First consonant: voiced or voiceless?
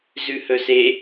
voiced